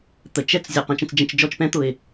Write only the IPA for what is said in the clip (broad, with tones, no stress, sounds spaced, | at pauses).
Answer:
t̪ ə˨ t͡ʃ ɛ˦ t͡s zʲ ɔ˨ q ə̃˦ t͡ʃ ə̃˦ t͡s d͡ʒ ə̃˦ t͡ʃ d͡ʒ ɔ˦ t͡ʃ p ɛ̃˦ t̪ ʊ˨ ɪ̯